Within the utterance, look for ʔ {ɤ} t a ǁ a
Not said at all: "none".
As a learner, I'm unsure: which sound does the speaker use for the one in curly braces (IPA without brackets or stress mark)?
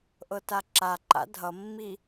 ɤ